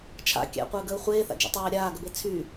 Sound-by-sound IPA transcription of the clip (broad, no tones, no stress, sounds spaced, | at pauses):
t͡ʃʰ a̰ kʲ æ̰ qʷ əː ɡ əː χʷ eː θ a̰ d͡ʒ æ̰ tˤ æː ɾʲ aː ɡ ə b e t͡sʰ y